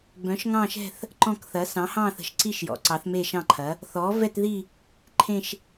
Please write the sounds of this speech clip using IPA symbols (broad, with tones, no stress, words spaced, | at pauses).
bœ̃˩˥ʃŋɑ̃˦˨ʃɛ̤˦˨θ | ǃɔ̃˦˨kθɐ˩˥ sɑ̃˩˥hɑ̃ː˦˨θə̤˩˥ʃ ǀi˦˨ʃjɔ̰˩˥ ǀɑ˩˥θme˦˨ʃɑ̃˦˨ǃʰɐ˩˥ | θɔː˩˥vɛ˦˨tði˦˨ | ǃʰẽ˦˨ʃ